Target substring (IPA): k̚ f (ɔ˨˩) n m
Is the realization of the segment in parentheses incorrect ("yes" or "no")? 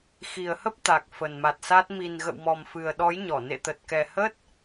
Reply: yes